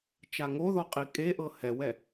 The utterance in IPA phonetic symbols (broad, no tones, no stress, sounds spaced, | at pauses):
t͡ʃ a ŋ o ð ɔ qʼ i kʼ e ʔ ɤ h ɛ w ɛ